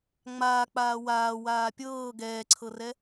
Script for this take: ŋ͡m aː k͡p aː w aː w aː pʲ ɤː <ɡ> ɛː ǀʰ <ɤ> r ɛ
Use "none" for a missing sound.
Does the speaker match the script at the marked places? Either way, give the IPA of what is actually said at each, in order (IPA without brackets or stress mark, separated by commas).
ɡ, ɤ